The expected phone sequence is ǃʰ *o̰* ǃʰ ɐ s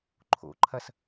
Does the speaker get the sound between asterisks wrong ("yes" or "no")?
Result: no